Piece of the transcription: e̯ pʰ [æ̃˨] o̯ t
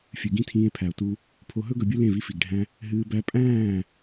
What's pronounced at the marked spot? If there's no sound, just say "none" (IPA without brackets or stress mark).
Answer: æ˨